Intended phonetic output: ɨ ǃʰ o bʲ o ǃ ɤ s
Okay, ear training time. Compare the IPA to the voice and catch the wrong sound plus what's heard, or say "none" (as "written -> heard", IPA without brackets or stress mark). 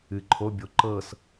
none